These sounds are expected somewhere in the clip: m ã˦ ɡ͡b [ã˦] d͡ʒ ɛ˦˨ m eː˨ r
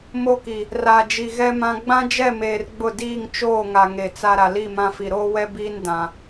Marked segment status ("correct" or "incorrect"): correct